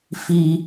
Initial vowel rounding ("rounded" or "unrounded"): unrounded